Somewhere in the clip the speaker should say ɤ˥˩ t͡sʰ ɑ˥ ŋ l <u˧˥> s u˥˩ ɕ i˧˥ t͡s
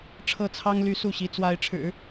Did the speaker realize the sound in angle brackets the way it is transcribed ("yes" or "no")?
no